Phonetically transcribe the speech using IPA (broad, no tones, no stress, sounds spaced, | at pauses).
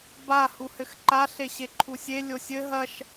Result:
b a h u h ɘ x ǃ a ɬ e ɕ e ǃʰ u sʲ e lʲ o sʲ ɘ ɦ ɐ ʃ